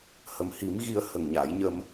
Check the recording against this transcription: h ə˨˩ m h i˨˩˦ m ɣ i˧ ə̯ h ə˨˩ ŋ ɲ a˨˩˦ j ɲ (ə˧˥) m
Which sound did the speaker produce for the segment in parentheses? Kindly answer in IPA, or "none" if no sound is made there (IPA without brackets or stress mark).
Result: ə˧